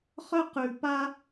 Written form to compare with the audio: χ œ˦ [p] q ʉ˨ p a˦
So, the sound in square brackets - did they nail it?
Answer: no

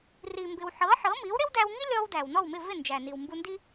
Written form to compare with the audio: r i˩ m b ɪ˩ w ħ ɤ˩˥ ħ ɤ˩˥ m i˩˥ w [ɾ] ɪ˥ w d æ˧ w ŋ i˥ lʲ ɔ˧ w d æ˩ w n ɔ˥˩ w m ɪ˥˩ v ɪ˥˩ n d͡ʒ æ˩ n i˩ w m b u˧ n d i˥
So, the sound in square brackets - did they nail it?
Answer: yes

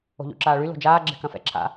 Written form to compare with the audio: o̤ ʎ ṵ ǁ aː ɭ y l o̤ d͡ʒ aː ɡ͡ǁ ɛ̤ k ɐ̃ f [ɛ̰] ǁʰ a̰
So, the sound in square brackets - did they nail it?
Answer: yes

